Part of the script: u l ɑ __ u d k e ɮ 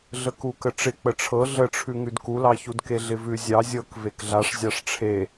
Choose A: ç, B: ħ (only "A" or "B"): A